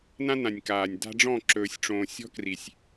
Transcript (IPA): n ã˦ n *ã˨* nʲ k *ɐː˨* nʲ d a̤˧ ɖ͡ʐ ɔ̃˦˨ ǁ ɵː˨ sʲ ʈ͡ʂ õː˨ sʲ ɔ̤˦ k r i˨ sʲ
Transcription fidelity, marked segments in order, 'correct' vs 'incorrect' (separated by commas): correct, incorrect